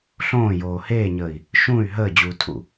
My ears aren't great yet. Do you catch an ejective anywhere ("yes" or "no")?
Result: no